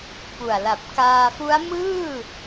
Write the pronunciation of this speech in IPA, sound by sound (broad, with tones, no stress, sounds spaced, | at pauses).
p u˨˩ a̯ l a˨˩ p̚ k aː˧ f u˦˥ a̯ m ɯː˥˩